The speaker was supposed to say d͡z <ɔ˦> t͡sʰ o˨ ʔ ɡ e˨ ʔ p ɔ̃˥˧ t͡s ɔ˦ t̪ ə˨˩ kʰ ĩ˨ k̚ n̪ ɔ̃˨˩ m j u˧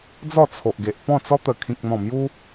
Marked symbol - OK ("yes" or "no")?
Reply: no